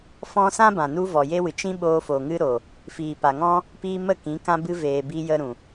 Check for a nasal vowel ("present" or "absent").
present